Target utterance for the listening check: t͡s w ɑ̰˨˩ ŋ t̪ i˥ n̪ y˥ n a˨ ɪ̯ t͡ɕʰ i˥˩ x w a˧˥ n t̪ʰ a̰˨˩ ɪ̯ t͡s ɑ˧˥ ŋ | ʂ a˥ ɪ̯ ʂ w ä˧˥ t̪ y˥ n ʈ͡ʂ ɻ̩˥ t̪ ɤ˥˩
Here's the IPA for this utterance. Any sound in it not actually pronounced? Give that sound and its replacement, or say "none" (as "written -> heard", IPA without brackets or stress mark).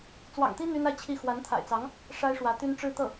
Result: none